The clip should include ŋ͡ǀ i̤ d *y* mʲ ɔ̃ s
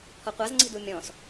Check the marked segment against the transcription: incorrect: u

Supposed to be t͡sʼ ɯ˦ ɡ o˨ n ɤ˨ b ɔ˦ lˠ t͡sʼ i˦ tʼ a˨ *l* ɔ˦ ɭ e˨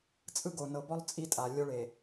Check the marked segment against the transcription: incorrect: lʲ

